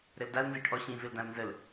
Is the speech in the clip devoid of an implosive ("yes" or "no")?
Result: yes